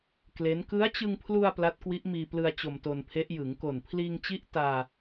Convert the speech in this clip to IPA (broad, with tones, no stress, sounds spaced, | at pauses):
k l e˦˥ n k ɯ˦˥ a̯ t͡ɕ ɯ˧ ŋ pʰ l u˧ a̯ p l a˦˥ t̚ k w i˦˥ ʔ m iː˧ p l ɯ˧ a̯ t͡ɕ o˧ m t o˧ n pʰ e˦˥ ʔ j ɯ˩˦ ŋ k o˨˩ n pʰ l iː˧ ŋ t͡ɕ i˦˥ ʔ t aː˧